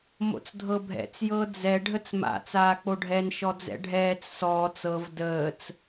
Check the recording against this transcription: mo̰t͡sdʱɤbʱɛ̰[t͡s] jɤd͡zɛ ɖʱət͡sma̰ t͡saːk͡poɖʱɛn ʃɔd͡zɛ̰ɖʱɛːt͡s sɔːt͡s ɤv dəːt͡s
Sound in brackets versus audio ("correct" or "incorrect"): correct